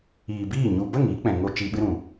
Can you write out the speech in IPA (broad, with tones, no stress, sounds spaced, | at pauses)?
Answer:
iː˨ b iː˦˨ ɲ u˨ b ə˦˨ ŋ iː˦ k͡p ɛ̃˨ ŋ o˧ t͡ʃ iː˧ ɓ ɨ˦ ɾ ũ˨